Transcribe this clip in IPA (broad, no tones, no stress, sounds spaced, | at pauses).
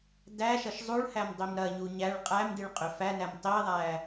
d æ ʃ ɐ ʃ zˤ u ɭ h æ m dˤ i m ɾ ɐ ɲ u ɲ æ ɭ qʼ æ m d i ɭ qʼ ʏ f æ n æ m tˤ i ðˤ æ